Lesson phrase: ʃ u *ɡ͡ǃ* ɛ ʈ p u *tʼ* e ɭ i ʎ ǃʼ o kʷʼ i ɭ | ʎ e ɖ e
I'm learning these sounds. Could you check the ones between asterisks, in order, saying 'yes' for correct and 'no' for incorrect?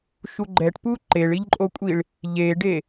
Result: yes, no

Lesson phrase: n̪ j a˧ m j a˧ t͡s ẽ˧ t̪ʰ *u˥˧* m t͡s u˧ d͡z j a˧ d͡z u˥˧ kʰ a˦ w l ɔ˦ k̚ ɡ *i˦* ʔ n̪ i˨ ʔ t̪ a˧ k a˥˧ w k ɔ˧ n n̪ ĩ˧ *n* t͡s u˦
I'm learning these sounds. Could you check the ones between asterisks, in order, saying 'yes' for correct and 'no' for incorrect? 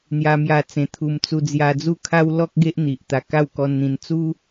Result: no, no, yes

